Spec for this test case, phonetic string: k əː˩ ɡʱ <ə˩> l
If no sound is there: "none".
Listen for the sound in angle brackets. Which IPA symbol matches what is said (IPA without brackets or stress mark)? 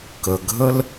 ə˥